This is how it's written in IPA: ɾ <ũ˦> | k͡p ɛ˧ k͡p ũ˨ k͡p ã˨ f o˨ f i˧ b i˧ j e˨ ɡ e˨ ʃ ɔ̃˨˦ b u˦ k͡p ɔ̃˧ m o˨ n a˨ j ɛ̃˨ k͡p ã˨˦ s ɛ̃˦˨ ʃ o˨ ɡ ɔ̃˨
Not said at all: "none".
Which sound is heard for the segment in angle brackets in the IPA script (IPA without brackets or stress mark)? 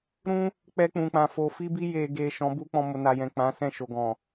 ũ˦